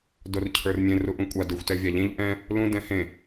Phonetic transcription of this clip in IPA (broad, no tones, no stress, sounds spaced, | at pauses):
d o r cʰ ə˞ r mʲ ẽ r u ʔ ũ kʷʼ a d ə˞ xʷ t ɛ vʲ a ʎ ẽ ʎ ʔ ɛ̃ | l ũ d ɛ̃ h ẽ